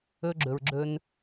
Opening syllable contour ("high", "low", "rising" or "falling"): high